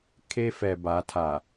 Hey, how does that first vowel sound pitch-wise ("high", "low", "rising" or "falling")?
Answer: high